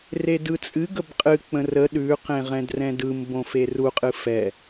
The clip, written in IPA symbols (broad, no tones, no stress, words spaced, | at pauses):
redɯt͡sʼɨ ɡəbqʼɨk͡pə̃ rə ɗʉqẽʁɛ̃d rɛ̃dɯm bõferuqʼɨ fɛ